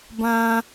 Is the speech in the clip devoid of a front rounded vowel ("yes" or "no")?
yes